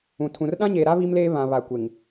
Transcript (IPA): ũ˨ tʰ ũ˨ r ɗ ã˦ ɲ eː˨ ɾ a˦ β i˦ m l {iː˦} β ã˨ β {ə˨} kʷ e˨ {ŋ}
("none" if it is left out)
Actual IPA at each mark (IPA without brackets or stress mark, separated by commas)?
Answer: eː˦, a˨, ŋ